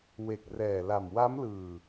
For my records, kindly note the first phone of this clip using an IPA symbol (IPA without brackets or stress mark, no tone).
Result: w